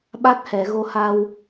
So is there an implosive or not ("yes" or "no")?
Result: yes